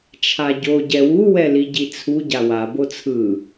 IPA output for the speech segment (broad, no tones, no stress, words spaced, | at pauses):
t͡ʃʰaɟo ɟɛwu wɛliɟit͡sʰu ɟawa bot͡sʰɯ